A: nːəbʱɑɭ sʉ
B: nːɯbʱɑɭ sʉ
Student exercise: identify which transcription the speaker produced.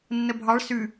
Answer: A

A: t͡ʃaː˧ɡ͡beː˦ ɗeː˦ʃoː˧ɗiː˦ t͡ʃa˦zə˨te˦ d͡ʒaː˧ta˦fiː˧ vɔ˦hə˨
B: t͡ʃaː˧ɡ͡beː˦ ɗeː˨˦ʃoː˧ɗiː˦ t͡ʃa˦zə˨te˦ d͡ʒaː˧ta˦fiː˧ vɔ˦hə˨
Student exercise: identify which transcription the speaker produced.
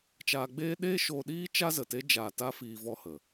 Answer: A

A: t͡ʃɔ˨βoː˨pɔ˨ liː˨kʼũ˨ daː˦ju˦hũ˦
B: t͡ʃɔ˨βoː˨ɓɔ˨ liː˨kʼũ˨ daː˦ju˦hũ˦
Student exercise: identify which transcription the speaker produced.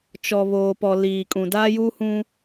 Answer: A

